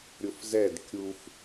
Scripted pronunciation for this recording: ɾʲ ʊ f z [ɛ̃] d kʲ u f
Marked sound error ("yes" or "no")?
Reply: yes